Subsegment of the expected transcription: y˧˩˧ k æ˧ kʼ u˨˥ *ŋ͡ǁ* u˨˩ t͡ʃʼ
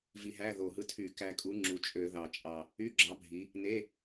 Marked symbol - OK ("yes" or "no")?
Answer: yes